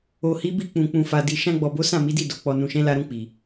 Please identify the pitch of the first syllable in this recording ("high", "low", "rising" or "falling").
low